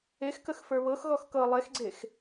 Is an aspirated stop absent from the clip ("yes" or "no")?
yes